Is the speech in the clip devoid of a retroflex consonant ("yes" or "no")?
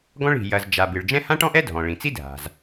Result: no